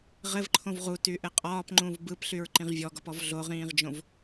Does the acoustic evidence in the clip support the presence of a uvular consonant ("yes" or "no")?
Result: yes